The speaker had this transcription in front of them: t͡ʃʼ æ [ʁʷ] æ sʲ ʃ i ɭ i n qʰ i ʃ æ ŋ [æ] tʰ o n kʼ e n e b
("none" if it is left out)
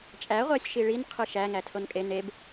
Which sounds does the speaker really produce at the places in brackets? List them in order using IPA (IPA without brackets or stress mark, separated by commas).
ʁʷ, æ